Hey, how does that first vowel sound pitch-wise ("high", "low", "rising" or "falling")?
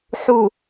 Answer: low